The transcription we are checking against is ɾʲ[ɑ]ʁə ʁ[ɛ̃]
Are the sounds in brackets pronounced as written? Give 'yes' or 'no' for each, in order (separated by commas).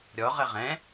no, yes